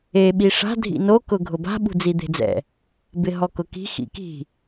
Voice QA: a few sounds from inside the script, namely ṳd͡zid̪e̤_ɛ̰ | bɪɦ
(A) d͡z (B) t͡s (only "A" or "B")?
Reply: A